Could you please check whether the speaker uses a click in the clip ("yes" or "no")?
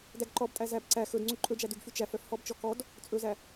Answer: yes